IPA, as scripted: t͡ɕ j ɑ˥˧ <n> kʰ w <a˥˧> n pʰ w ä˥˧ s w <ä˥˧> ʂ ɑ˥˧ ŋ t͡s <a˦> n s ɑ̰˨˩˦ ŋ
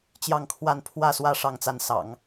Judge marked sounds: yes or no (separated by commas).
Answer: no, yes, yes, no